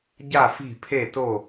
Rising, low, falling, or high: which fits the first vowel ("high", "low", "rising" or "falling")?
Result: falling